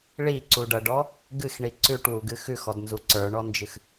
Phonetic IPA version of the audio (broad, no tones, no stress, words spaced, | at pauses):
ɭiǀuɖʌɖɔ | ɡɨxɳi ǀʉʈwuɡɨ xʉxɔdnzu ǀə˞ɳɔnd͡ʒɨx